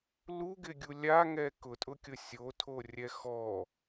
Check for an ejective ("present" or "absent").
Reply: present